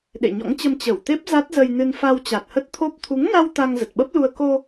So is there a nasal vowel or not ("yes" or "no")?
no